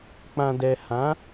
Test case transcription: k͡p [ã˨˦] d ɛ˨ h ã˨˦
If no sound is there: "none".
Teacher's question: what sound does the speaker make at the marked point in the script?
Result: ã˨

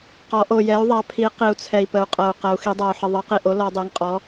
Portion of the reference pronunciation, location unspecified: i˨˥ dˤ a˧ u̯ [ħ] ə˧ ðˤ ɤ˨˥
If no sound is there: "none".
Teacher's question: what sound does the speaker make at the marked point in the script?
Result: ħ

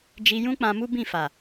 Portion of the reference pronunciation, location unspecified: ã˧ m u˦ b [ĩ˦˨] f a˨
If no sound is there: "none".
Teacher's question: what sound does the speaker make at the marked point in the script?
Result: ĩ˦˨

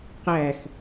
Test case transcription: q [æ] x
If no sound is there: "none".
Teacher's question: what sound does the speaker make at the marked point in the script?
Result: æ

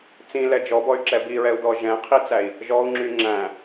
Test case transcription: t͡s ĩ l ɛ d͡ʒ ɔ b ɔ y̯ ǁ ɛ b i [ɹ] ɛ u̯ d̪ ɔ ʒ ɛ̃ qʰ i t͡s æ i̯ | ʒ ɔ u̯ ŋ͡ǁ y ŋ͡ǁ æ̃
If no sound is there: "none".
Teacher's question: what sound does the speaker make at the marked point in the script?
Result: ɹ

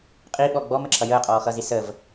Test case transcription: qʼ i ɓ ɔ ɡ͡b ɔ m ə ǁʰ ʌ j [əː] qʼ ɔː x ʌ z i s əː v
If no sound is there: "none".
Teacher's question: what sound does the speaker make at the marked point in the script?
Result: əː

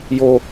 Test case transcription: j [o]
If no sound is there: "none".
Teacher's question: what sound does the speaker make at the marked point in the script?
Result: o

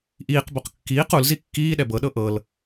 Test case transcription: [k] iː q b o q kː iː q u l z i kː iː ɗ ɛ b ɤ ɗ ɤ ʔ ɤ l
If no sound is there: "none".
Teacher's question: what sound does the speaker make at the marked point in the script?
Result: ʔ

